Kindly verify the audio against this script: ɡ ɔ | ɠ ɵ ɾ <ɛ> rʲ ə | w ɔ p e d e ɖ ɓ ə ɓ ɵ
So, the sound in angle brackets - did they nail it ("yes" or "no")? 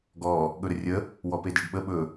no